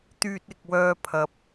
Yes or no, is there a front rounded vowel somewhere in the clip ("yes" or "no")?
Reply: yes